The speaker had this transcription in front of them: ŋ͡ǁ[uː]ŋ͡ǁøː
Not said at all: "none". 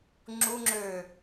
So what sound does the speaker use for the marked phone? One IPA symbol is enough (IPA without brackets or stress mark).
u